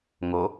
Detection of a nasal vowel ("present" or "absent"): absent